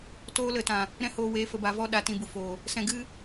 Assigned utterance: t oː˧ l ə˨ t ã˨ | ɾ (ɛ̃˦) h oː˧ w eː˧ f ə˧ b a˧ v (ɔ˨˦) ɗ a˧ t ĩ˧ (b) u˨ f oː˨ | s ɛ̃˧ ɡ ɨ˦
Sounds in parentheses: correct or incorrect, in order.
correct, incorrect: ɔ˦, correct

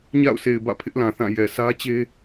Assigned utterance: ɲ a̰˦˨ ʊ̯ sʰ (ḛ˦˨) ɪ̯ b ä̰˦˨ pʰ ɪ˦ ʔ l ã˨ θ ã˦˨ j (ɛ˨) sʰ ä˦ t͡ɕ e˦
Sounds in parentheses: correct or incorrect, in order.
incorrect: e˨, correct

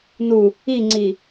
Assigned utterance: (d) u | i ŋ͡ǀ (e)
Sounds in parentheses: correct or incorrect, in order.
incorrect: n, incorrect: i

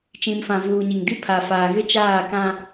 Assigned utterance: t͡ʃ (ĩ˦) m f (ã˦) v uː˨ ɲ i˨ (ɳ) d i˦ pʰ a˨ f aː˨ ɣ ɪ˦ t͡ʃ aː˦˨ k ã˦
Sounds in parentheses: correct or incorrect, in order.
incorrect: ĩ˨, incorrect: ã˨, incorrect: ŋ

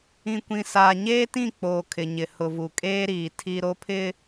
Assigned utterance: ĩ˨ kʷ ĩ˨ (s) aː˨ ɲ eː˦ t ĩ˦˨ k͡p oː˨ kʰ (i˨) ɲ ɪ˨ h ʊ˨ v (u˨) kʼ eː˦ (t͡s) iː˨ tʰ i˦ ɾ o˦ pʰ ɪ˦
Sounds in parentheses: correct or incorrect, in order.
correct, incorrect: ɪ˨, correct, incorrect: ɾ

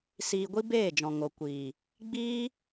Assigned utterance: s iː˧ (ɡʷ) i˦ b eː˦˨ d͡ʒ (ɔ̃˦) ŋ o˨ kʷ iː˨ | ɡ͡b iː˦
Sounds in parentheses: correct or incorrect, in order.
correct, incorrect: ɔ̃˨

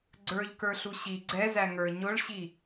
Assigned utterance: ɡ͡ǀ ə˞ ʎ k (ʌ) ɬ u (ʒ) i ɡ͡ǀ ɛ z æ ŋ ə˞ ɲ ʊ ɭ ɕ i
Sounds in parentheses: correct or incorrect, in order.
incorrect: ə˞, incorrect: ɕ

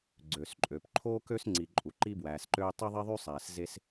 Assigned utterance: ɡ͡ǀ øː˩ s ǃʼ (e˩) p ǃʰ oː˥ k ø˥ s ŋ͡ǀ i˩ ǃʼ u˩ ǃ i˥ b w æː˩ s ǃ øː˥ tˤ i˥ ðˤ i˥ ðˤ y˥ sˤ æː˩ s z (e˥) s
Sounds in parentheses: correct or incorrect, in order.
incorrect: ø˩, correct

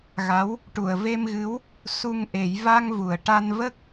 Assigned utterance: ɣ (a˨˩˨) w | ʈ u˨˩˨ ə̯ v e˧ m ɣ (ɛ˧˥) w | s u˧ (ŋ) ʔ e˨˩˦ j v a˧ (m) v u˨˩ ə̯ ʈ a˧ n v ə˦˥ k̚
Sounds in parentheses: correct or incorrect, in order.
incorrect: a˧˥, incorrect: ɨ˧˥, correct, incorrect: ŋ

